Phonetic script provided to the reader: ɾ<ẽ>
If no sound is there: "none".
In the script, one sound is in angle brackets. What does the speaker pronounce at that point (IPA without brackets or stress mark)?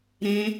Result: ẽ